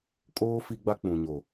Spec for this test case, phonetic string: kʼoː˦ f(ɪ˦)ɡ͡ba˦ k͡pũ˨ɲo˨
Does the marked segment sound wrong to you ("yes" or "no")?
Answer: yes